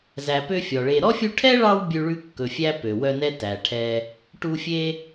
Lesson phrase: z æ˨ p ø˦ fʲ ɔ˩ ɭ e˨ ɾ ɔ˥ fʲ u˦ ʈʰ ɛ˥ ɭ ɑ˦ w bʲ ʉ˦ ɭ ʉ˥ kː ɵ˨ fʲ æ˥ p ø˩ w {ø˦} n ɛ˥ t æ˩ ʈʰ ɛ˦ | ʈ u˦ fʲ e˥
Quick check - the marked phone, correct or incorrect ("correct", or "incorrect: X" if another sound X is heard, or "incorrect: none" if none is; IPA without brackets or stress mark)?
incorrect: œ˦